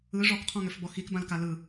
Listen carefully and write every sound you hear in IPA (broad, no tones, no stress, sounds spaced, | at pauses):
ɯ ʐ ɔ k qʰ ɔ̃ ŋ ø f b ɔ x i k b ã l k a l ɯ